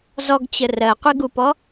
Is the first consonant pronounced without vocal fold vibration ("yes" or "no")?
no